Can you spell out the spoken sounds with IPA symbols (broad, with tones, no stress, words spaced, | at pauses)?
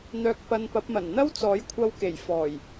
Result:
n̪œː˧k̚ pɐ˧npɐ˨˥p̚mɐ˨˩n n̪ɐ˥wt͡sɔː˨˥jkʷʰɐ˧wke˨˩j fɔː˨˩j